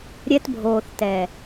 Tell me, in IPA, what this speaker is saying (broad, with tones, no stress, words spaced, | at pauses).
ɾʲɛ˧tbʱoː˨θ tɛ˨